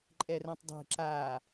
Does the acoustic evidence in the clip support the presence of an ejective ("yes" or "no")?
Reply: yes